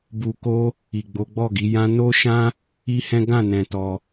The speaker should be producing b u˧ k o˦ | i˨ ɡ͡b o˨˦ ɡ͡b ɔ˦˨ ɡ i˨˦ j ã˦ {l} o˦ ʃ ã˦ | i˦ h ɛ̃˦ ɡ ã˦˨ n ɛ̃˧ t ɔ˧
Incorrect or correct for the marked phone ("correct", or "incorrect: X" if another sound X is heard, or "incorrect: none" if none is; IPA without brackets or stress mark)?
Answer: incorrect: n